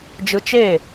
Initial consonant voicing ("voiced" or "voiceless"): voiced